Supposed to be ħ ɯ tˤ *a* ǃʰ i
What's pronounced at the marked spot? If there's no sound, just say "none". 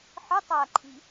a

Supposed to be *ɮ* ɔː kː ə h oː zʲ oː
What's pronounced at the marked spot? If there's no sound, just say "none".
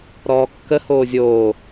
ɾ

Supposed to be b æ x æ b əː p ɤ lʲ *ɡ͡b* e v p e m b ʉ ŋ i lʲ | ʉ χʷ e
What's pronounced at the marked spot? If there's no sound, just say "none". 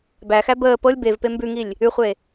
b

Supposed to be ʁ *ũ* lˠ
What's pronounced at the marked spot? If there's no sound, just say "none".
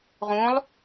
ũ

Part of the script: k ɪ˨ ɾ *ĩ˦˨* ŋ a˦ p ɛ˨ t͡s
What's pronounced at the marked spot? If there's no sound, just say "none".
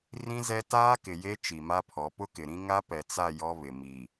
ĩ˦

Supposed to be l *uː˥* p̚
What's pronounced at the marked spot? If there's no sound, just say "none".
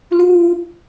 uː˥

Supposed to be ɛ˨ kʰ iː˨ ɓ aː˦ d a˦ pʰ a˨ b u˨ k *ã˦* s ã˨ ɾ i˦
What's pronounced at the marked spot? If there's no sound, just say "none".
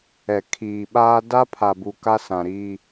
a˦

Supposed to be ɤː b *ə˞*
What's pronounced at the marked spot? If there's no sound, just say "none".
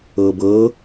ɤ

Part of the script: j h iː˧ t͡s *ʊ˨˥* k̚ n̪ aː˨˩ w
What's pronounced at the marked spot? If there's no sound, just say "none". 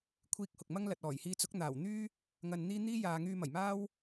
ʊ˨˥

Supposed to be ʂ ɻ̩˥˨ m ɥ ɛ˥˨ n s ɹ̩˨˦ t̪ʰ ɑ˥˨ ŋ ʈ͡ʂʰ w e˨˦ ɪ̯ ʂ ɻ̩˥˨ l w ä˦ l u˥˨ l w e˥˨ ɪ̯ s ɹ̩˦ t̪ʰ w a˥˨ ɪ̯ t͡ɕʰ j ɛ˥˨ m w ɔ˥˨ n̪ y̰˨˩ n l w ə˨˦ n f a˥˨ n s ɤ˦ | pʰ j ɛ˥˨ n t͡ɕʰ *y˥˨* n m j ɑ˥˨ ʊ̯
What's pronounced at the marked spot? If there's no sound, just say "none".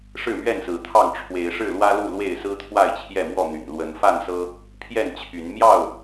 y˨˦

